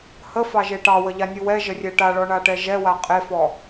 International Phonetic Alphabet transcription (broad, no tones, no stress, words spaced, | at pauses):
həfɑʒe ʈɑwəʎanʲu wɛʒərʲɛ ʈaɭɔɳaʈɛ ʒɛwa qʼefɔ